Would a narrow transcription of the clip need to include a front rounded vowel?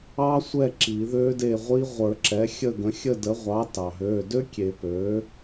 yes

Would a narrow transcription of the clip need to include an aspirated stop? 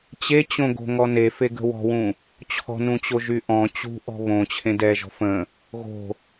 yes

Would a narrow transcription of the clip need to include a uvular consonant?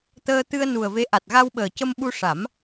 no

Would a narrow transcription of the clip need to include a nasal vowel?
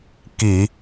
no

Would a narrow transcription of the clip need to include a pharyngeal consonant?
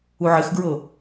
yes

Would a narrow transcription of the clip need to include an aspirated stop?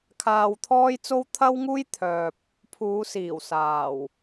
yes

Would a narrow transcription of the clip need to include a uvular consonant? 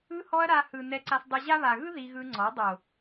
no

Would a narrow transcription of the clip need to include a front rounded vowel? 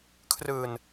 no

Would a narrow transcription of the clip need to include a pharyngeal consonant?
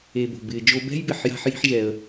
yes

